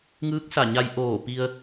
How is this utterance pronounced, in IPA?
ŋ ɯː˧˥ k̚ s a˧˩ ɲ a˧ j ʔ oː˧˩ p i˧ ə̯

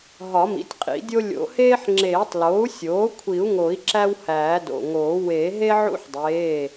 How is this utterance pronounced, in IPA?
ɦ ɒ˨˩˦ m ḭ˩˥ tʲ qʼ ḭ˨˩˦ dʲ o˦ lʲ o̰˨˩˦ h eː˦ ħ ŋ͡ǁ eː˨˩˦ tˤ l oː˩˥ u̯ sʲ oː˩˥ kʷʰ i˨˩˦ u̯ ŋ o˨˩˦ i̯ ǁ æ˦ w h æː˨˩˦ d o̰˩˧˩ ŋ oː˨˩˦ w e˨˩˦ ɦ e˦ ʕ ṵ˦ ħ dˤ eː˩˧˩

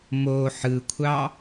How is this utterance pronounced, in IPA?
m o ħ ɯ kʷʰ ɑ

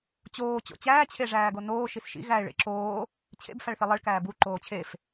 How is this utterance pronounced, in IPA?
t͡ɕ oː t͡ɕ o̰ t͡ɕ æː t͡ɕʰ e ʐ æː ɡ o n oː ʃ i s ʃ ḭ ɣ æ ɪ̯ ɭ ḛ ǁ oː | t͡ɕʰ ḛ b f æ ɭ θ i lˠ e ɭ k æː b u ǃ oː t͡ɕʰ e f

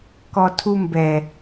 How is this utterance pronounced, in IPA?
k ɔ tʰ u m b ɛ

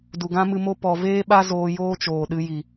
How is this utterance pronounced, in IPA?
d u˨ ɡ ã˦ m ɨ˧ m o˧ p ɔ˨ v eː˦ ɓ a˦ z oː˧ j oː˦ t͡ʃ oː˨ ɗ ɨ˧ j i˨

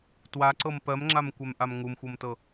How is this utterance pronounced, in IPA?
t w a ǀ ɤ m p ɜ m ŋ͡ǁ a m kʷ ɛ m ʔ a m ŋ u m xʷ ɤ m t ɤ

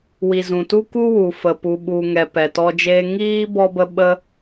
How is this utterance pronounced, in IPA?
w i˨ z ũ˨ t u˦ k u˦ w u˨ f ə˨ p u˨ ɓ u˨ ŋ ɛ˨ p ɛ˨ t ɔ˧ d͡ʒ eː˧ ŋ iː˦ b ɔ˧ b ə˧ ɓ ə˧

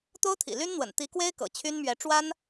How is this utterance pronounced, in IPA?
t̪ o˥ ʊ̯ t̪ʰ ḭ˨˩ l y˥ n n̪ w ə̰˨˩ n t̪ i˧˥ k w e˥ ɪ̯ k ɤ̰˨˩ t͡ɕʰ y˥ n m ɥ ɛ˧˥ ʈ͡ʂ w a˥ n

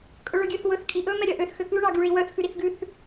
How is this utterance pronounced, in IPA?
kʼ ɵ ɭ ɵ ɡʲ ø θ w ɵ θ kʼ i ʔ ɵ m ɛ ɾʲ œ ʔ ø θ x ø k ʉ ɳ ɑ ɡ y ɭ i w œ θ x ʉ ɾ i θ ɡ ʉ θ

